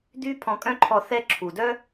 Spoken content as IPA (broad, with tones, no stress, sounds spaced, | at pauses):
d̪ y˦ pʰ ɔ̃˧ kʼ œ̃˦ ǃʰ ɔ˧ θ ɛ˦ ǁʰ u˨ d œ˦